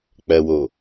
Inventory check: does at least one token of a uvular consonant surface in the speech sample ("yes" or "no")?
no